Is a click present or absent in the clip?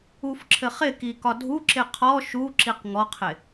present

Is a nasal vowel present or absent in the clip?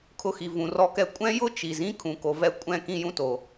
present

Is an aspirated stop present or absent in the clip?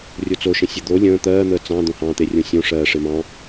absent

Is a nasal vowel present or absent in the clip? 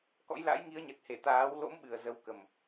absent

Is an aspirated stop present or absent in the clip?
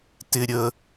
absent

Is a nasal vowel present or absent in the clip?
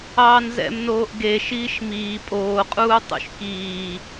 absent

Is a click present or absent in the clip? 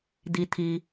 absent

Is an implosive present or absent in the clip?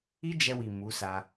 absent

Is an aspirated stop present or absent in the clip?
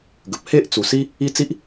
absent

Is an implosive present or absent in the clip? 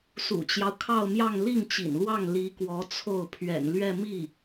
absent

